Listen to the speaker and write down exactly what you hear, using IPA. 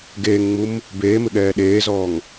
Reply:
ɡ eː ŋ ŋ͡m u m | b eː m ɪ ɠ ɛː ɗ eː z ɔː ŋ

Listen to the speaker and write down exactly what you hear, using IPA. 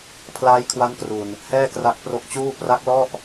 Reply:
pʰ l aː˦˥ j kʰ w a˦˥ n k r u˨˩ n | h ɛː˥˩ k r a˦˥ k̚ p r o˦˥ k̚ t͡ɕ uː˥˩ p r a˦˥ k̚ l ɔ˥˩ ʔ

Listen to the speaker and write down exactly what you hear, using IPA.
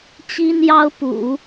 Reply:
t͡ɕ i˥ n j ɑ˥ ʊ̯ p ṵ˨˩˦

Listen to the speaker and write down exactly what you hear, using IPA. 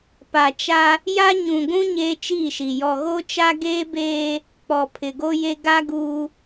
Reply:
p a˨ t͡ʃ a˦ | j a˦ ɲ ũ˨ ɡʷ ũ˦ ɲ eː˦ t͡ʃ iː˦˨ ʃ i˨ j ɔ˨ ɣ o˦ t͡ʃ a˦ ɡ eː˦ b eː˦ | k͡p ɔ˨ pʰ ɪ˨ ɡ o˦ j e˦ ɡ a˦ ɡ uː˦

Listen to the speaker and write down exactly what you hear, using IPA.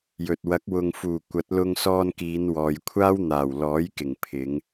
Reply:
j ɵ˨ t̚ w ɐ˨˥ k̚ w ʊ˨ ŋ f uː˨˩ kʷ ɐ˨˥ t̚ l ʊ˧ ŋ s ɔː˧ n k iː˨˧ n w ɔː˨ j kʷʰ aː˥ w n̪ aː˨˩ w l ɔː˨˥ j k ɪ˨˩ ŋ pʰ ɪ˨˧ ŋ

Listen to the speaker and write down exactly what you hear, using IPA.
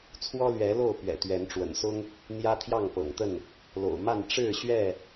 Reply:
t͡sʰ w ɔ˦ l ɥ ɛ˨˦ l o˥˨ ʊ̯ p ɥ ɛ̰˨˩ t̪ ɥ ɛ˨˦ n ʈ͡ʂ w ə̰˨˩ n s ʊ˦ ŋ | n̪ j ä˦ t̪ʰ j ɑ˥˨ ŋ p ɤ̰˨˩ ŋ t̪ ə˥˨ n | l o̰˨˩ ʊ̯ m a˥˨ n ʈ͡ʂ ɻ̩˥˨ ɕ ɥ ɛ˥˨

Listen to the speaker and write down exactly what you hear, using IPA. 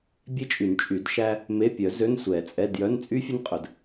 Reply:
bʲ e˥ t͡ʃʼ y˨˩˦ n t͡ʃʼ y˨˩˦ d ʃ æ˥ | m e˧˥˧ pʲ œ˨˩˦ z ø˧˥˧ n sʷ ɛ˨˩˦ t͡sʼ ɛ˧˥˧ d j œ˧˥˧ n t͡sʼ y˥ fʲ ɵ˥ n qʼ ɵ˨˩˦ d

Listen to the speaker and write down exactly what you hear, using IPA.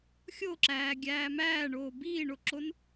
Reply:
xʲ o ǁ æː ɡʲ æː m æː ɳ oː b iː ɳ o ǁ o n

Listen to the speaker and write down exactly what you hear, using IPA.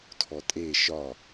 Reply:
tʰ ɔ tʼ e ʃ ɒ

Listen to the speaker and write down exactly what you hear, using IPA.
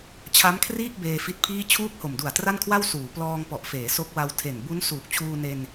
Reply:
t͡ɕʰ a˦˥ m kʰ r iː˥˩ k̚ b eː˧ f i˦˥ t̚ pʰ iː˥˩ t͡ɕʰ uː˥˩ k̚ h o˨˩ m d u˨˩ a̯ t r a˥˩ n kʰ w a˥˩ w s uː˩˦ p l ɔː˧ ŋ p ɔ˨˩ ʔ f eː˩˦ s o˦˥ k̚ w a˧ w tʰ e˨˩ n b u˦˥ n s uː˨˩ k̚ t͡ɕʰ uː˧ n e˧ n

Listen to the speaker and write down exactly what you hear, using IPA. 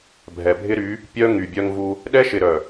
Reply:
bʱ ɛ˨ bʱ ɪ˦ ɾ y˨˦ | pʲ œ˦ ŋ y˨ bʲ œ˦ ŋ v u˦ | ɗ ɛ˦ ʃ ɪ˨ ɾ œ˨

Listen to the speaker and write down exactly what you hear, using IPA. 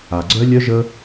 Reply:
a˨ ɡ͡ǀ œ˦ lʲ œ˦ ʒ ə˧

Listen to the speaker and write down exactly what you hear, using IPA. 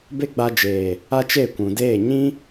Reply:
b e˦ ɡ͡b a˧ d͡ʒ eː˨ | a˦ t͡ʃ e˦˨ kʷ ũ˨ d eː˦˨ ɲ ĩ˦

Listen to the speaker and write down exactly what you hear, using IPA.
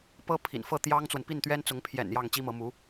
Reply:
p ɤ˥ pʰ ḭ˨˩ n f ɤ˥˩ t̪ j ɑ˥ ŋ t͡s w ə˨ n p i˥˩ n t̪ ɥ ɛ˥ n t͡s ʊ˧˥ ŋ pʰ j ɛ̰˨˩ n j ɑ˥˩ ŋ t͡ɕ i˥ m ɤ˧˥ m u˧˥

